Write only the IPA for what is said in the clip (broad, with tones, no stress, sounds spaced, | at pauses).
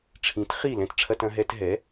ʈ͡ʂʰ ĩ˩˥ t χ i˧˩ l ɛ̃˧ t ʈ͡ʂʰ ɐ˧ t ɐ̃˧ ɦ ɛ˧ t ɦ ɛ˩˥